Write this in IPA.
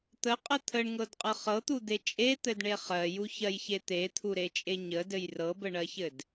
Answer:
t̪əqʼə t̪ʰəɳŋɤdqʼɤ χɤt̪ud̪e t͡ʃʼet̪ɘdɳe χɜjuçɜjçe t̪et̪ʰuɾet͡ʃʼe ɲədɘj rɤbəɳɜçɘd

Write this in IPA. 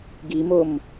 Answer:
ɡimom

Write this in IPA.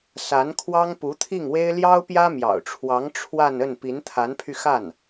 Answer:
sa˧˥n kʰwɑ˥ŋpu˧˥t̪ʰi˥˩ŋwe˥ɪ̯ ljɑ˥ʊ̯pjä˥mjɑ̰˨˩ʊ̯ʈ͡ʂʰwɑ˧˥ŋ ʈ͡ʂʰwa˥˧n ə˥˩n pi˧˥nt̪ʰa˧˥npʰy˧ xa˥˩n

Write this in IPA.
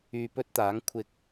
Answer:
yː˧pɵ˥t̚t̪aː˨˥ŋ kʷʰɪ˨k̚

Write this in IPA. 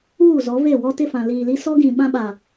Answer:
uː˦˨zɔ˨˦ve˦˨wɔ˦ tɪ˦˨fã˨liː˨li˦ sɔ˦ɡĩ˨ ɓã˦ɓa˨

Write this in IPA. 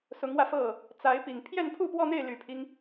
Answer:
sʊ˧˥ŋwä˧fɤ˥˩ | t͡sa˧˥ɪ̯pi˨˩ŋ pʰjɛ˥˧npʰu˥˧pwɔ˥˧n̪e˥˩ɪ̯ ly˨˩pʰi˦ŋ

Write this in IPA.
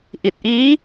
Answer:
ʔi˨˩t̚ʔiː˦˥

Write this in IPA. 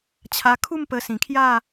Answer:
t͡ɕʰa˧kʰu˥˧m pə˧ sĩ˨˩kʰja˥˧

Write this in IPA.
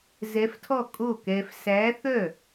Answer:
zɛ˧˥ftʰɔ˥˩ kʼo˥˩kɛ˧f sæ˧˥ θœ˥˩

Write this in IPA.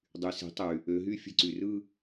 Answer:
dˤy˩˥se̤˩˥tˤy˩ | ø˩˧ɦy˥˩ fʲe̤˥˩ǀy˩rɯ˥˧

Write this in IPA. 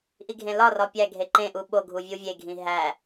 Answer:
ʔiɡʱẽlɒrɒ pʲæɡʱe ǃẽʔu ɓo ɡʱuvʲuvʲeɡʱĩ ɦæ

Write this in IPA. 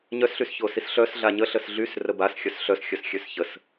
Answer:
ɲœsɬysçosis ɬœs ɮaɲəɬəs ɮysrə basxʲœs ɬœsxʲœsxʲøs çəs

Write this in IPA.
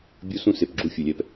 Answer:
bʲu˦sũ˦se˨p ɡ͡ǁu˦fʲʊ˨lʲɛ˦p

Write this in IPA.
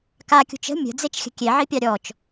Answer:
kakʲṳt͡ʃ ə̤ mʲə̤d͡zet͡ʃxʲə̤ kʲeʕipʲɑ ɾʲɔt͡ʃ

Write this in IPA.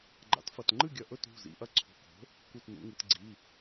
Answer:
ɡ͡ǃa̰˩˥tfɐ˩˧˩tŋ͡ǃɨ˥˨ɡʲɐ˧˩ ʔɵ˥˨t ṳ˩˧˩ zḭ˩˧˩ʔɐ˥˨ ǀʰṳ˩˧˩ko̤˩˥ | ku˧˩tnṵ˩˧ŋɨ˩˧t ɡ͡ǀi˩˧˩

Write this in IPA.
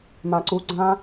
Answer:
maǀuɡ͡ǀã

